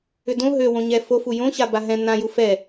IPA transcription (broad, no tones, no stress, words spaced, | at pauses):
ʏdõ ɦøwõɲɛ fofu jõɕa baɦɛ̃ nãju fɛ